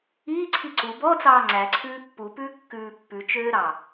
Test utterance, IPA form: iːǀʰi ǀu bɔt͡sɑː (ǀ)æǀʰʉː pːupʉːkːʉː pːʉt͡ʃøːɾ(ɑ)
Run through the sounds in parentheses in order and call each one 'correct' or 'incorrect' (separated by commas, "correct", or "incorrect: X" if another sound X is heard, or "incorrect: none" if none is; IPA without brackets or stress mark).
incorrect: ŋ͡ǀ, correct